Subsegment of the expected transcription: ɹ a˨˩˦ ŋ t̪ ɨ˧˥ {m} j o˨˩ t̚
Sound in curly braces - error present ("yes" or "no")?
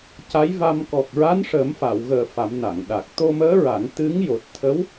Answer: yes